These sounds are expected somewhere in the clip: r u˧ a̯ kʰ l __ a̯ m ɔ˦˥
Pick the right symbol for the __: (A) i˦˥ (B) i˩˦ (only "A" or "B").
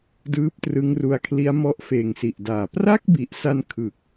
A